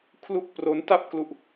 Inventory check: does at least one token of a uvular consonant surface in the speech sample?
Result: no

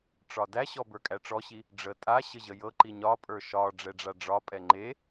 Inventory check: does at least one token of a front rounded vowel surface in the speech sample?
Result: no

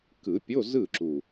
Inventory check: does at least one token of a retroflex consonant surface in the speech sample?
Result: no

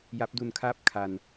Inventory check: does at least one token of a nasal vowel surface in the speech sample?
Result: no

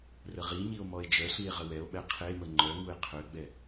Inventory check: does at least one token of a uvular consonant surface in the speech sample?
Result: yes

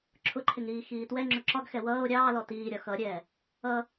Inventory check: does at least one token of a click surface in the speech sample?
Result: yes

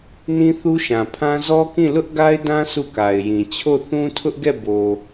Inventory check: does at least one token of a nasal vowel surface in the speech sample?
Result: yes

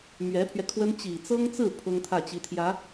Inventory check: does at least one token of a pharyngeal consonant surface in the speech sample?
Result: no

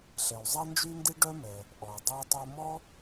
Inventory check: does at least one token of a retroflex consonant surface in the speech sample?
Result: yes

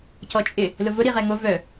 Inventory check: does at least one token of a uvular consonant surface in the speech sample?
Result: yes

